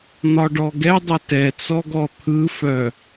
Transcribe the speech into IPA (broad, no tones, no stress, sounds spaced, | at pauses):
n̪ ɒ ɖ ɔ ɡ ɛ dˤ ə t ɛ t͡s ɔ ɡ ɔ t̪ʰ ɯ f œ